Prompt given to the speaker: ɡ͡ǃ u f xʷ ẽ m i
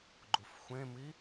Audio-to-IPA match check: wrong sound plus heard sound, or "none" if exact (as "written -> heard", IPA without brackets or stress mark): none